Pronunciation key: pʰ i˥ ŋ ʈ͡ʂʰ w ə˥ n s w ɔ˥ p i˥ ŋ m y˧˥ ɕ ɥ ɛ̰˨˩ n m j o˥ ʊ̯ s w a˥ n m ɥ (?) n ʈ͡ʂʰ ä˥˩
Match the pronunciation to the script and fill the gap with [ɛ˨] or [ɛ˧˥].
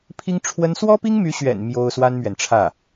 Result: ɛ˨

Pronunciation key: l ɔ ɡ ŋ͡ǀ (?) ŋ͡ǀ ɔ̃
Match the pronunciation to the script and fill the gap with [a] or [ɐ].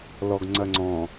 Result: ɐ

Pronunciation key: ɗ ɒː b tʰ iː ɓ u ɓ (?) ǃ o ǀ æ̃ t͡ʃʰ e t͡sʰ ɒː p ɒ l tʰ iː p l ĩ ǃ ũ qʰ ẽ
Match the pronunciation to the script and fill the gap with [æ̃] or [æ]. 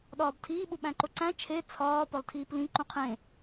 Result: æ̃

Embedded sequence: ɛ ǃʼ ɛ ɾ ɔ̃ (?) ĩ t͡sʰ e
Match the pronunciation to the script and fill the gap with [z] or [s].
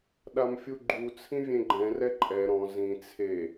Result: z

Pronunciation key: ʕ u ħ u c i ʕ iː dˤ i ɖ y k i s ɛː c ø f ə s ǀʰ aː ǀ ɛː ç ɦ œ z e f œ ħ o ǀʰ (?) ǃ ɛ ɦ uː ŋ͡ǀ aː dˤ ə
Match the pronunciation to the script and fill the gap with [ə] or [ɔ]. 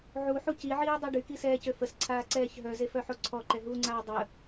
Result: ɔ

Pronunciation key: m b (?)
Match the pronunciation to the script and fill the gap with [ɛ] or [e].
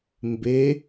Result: e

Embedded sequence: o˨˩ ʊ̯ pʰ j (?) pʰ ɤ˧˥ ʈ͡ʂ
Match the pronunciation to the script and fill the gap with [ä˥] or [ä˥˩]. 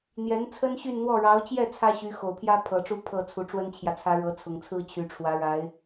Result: ä˥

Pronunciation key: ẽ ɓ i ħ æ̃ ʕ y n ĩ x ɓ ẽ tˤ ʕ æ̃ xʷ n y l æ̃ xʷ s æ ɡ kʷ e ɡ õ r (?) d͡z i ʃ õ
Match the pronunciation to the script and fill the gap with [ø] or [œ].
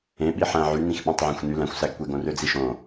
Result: ø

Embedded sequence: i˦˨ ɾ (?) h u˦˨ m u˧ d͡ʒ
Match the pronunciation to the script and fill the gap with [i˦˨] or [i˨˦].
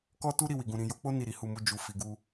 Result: i˨˦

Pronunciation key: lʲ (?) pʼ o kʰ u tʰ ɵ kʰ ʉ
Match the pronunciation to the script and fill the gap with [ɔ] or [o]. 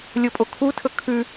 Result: o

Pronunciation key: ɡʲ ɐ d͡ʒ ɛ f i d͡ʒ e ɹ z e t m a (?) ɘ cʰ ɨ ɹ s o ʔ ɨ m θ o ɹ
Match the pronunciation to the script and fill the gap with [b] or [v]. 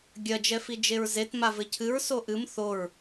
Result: v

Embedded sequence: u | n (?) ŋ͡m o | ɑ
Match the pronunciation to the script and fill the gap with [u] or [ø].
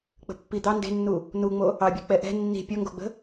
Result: u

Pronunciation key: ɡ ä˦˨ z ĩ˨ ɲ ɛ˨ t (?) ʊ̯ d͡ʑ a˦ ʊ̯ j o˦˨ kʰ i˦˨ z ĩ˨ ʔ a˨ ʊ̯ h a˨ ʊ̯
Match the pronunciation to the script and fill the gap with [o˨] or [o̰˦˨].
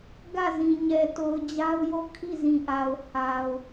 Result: o˨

